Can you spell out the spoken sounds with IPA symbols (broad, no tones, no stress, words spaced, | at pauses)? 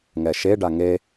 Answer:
ŋɛʃe ɖaŋe